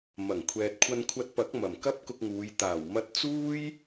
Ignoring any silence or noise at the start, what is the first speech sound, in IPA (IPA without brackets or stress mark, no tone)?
m